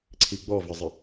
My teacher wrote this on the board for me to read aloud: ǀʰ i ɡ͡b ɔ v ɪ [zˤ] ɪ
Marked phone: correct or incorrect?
correct